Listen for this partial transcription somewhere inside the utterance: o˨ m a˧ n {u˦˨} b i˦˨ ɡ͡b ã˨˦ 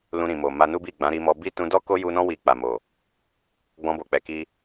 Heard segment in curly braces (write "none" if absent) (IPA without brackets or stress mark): u˦